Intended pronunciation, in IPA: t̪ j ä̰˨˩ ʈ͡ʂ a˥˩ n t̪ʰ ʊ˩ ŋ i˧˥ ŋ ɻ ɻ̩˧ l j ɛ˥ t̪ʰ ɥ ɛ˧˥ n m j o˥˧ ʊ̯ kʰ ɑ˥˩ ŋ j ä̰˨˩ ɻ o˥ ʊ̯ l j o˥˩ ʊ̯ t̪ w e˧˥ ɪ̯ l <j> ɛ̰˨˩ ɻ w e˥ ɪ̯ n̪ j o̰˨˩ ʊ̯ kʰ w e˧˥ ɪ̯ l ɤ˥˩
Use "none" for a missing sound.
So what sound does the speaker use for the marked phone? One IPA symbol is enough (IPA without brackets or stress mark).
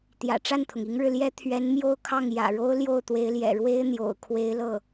j